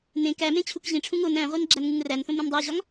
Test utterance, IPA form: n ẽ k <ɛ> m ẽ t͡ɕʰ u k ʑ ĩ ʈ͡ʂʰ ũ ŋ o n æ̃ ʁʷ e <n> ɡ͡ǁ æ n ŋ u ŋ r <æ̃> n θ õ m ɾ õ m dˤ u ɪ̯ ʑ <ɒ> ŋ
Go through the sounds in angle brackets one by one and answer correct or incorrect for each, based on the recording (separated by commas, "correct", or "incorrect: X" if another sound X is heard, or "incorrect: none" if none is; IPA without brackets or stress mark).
incorrect: æ, correct, incorrect: æ, correct